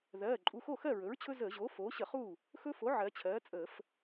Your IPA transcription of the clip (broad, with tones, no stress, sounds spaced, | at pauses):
ð ɜː˩˧˩ ǃʼ u˩˧˩ x o˥˩ x ɜ˥˩ ɹ ɵ˩˥ ɹ t͡ɕʰ ɵ˦ z əː˧˩˧ ʑ oː˩˥ f oː˩˥ ɕ ə˧˩˧ χ uː˥˩ | x ɵ˦ f o˩˥ ʕ ɜ˩˧ t͡ɕʰ ɜː˩˥ t͡sʼ əː˧˩˧ f